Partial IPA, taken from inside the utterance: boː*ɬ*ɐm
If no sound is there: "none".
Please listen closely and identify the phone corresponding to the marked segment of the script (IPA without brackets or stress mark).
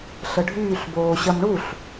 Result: ɕ